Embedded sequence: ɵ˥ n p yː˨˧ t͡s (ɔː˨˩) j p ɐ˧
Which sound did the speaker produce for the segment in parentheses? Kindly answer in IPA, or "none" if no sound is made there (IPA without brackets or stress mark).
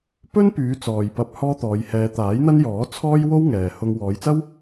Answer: ɔː˨